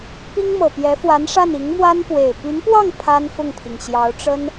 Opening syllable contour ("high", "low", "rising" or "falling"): high